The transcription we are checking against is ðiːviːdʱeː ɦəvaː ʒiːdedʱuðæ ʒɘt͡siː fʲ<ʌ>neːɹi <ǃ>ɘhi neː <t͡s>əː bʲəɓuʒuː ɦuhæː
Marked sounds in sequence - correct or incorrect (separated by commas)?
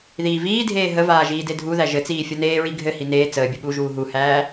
correct, incorrect, correct